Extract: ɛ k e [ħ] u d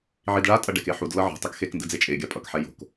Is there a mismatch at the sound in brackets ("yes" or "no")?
no